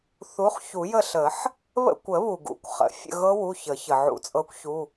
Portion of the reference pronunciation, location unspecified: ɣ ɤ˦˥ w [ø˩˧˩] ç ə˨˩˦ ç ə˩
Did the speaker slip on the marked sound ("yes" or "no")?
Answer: yes